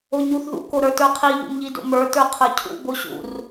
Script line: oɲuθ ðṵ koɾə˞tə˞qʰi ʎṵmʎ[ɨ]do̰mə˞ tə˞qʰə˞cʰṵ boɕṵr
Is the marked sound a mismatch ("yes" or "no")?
yes